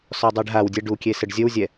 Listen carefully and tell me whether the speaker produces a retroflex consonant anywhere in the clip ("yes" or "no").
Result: yes